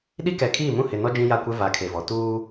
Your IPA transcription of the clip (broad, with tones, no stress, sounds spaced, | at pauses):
ɗ i˦ k ɛ˨ kʰ iː˦˨ m ũ˦˨ h ɪ˨ n ɔ˦ d͡ʒ ĩ˦ j a˦˨ kʷ ɛ˦ v a˨˦ kʰ e˨ v ɔ˨ t uː˦